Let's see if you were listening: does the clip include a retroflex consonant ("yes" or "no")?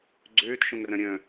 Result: no